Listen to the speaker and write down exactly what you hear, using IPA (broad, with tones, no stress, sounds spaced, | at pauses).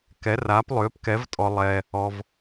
k ɛ˨˥ r aː˨˥ p lˠ ʏː˨˥ p k ɛ˨˥ v tʼ ɔ˧ lˠ ɛː˧ | ɔ˧ v